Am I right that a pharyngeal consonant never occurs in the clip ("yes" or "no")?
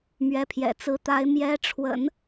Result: yes